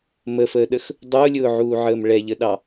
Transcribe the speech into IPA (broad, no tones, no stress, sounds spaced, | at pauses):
m ə f əː ɗ ə x | dˤ ʊː lʲ ʊː ʕ uː ʕ əː m ɭ ɛ ʎ ə ɗ ɑ